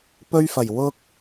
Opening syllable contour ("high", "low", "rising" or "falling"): high